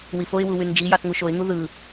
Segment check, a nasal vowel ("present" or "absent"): absent